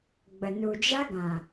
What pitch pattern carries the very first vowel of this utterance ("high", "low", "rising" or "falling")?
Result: low